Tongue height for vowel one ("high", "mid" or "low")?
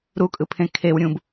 high